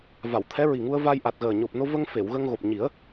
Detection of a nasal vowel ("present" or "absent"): absent